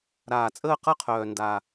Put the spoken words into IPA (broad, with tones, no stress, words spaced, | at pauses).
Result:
ɾaː˥˧ t͡sʼəː˥˧qɤ˥qʰœː˧ nda˧